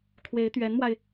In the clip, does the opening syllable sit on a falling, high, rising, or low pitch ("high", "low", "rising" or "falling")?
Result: rising